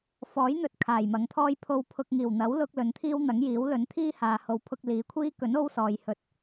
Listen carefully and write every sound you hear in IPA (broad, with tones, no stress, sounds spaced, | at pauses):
f ɔː˨˥ j n̪ ɵ˧ t̚ kʰ aː˨˩ j m ɐ˨˥ ŋ t̪ʰ ɔː˥ j pʰ o˧ w pʰ ʊ˧ k̚ ŋ iː˨˩ w n̪ ɐ˨˥ w l ʊ˧ k̚ l ɵ˨˥ n t̪ʰ iː˥ w n̪ ɐ˨˥ ŋ j iː˨˥ w l ɵ˨˥ n t̪ʰ iː˥ h aː˨ h o˨˥ w pʰ ʊ˧ k̚ l iː˨˥ kʷʰ iː˥ k ɵ˨˥ n o˥ w s ɔː˨ j h ɵ˧ t̚